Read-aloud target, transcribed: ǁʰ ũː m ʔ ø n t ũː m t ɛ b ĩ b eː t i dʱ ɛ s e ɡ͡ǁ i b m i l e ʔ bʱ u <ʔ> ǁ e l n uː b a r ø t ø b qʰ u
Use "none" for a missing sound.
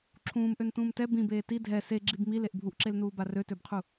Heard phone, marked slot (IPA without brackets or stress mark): ʔ